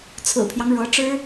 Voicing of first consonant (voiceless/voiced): voiceless